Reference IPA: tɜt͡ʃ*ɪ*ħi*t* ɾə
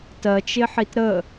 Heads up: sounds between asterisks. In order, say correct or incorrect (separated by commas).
correct, correct